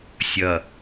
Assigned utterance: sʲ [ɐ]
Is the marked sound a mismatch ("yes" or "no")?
no